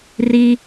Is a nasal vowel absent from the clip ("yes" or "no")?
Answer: yes